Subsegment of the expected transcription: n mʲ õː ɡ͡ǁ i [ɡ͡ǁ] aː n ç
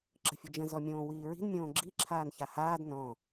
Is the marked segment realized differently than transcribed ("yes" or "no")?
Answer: yes